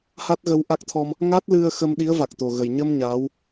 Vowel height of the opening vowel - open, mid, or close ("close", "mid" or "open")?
open